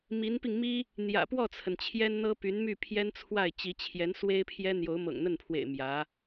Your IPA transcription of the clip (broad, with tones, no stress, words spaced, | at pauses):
mi˧˥npi˧ŋ mi˥ | n̪jä̰˨˩pwɔ˥˩t͡sʰə˩n t͡ɕʰjɛ˥nn̪ɤ˥ py˧˥nmy˥˩ pʰjɛ˥nt͡sʰwa˥˩ɪ̯ t͡ɕi˧˥t͡ɕʰjɛ˧˥n swe˥ɪ̯pʰjɛ˥ n̪jo˧˥ʊ̯ mɤ̰˨˩ŋn̪ə˥˩npʰwḛ˨˩ɪ̯ mjä˧˥